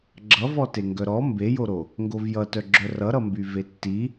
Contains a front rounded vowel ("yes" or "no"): yes